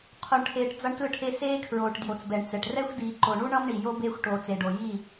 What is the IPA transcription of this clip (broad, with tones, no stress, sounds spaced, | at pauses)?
qʰ o˨ ɳ ʈʰ eː˨ ʈ d͡z ʌ˦ ɳ t ɯ˦˨ ʈʰ e˦ s eː˦ kʰ ɹ oː˨ ʈ d j o˨ t͡s b ɛ˨ ɳ t͡s ɛ˨ ʈ r ɛ˦ xʷ d iː˨ ǃ o˨ ɳ u˦ ɳ ʌ˦ m ɳ i˨ j o˦ b eː˦ xʷ ʈ oː˨ t͡s e˨ ɖ o˨ j i˦˨